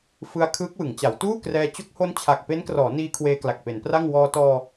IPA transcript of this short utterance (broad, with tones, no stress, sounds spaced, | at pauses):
f ɯ˧ a̯ kʰ ɯː˦˥ k̚ w ɯ˩˦ ŋ t͡ɕ a˩˦ w t uː˥˩ k r ɛː˧ t͡ɕ o˦˥ k̚ h o˦˥ n t͡ɕʰ a˨˩ k̚ p e˦˥ n k r ɔː˩˦ n iː˧ kʰ w eː˧ k l a˨˩ k̚ p e˩˦ n p r a˥˩ ŋ w ɔː˧ t ɔː˧